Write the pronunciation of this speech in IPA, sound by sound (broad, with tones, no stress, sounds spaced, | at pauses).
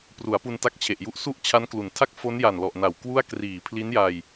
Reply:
p r u˩˦ a̯ p u˧ n t a˦˥ k̚ t͡ɕʰ e˨˩ ʔ j u˦˥ ʔ s u˥˩ ʔ t͡ɕʰ a˦˥ n k l u˩˦ n tʰ a˥˩ k̚ f o˦˥ n j a˨˩ n l ɔ˨˩ ʔ n a˨˩ w k w u˥˩ a̯ k r iː˨˩ pʰ l i˦˥ n j a˧ j